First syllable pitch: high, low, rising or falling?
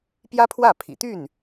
high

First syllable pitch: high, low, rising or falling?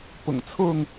low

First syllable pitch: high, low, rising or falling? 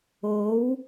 rising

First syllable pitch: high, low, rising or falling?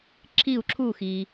falling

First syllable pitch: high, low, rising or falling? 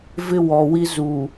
high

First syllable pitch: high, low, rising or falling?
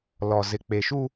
low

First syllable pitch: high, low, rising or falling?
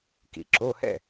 low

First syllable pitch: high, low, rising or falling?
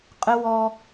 high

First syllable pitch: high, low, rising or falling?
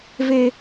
high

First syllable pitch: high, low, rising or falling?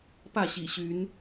falling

